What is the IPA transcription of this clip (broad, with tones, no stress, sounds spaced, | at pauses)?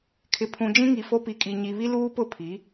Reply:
kʰ ɪ˨ pʰ ũ˨ d͡ʒ ĩ˦ ŋ i˨ f o˦ p i˨ kʼ i˨ ɲ i˨ β i˦ l uː˦ p ʊ˦˨ pʰ i˨˦